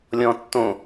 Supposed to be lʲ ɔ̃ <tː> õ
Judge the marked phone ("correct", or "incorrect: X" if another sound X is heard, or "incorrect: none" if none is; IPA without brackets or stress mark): correct